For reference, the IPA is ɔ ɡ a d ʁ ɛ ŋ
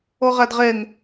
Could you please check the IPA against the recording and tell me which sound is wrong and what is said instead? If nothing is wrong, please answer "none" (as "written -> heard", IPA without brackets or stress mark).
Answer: ɡ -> ʁ